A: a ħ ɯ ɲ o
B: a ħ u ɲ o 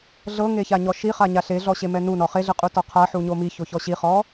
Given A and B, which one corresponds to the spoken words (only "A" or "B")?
B